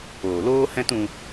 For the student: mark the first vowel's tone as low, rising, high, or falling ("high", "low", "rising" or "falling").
low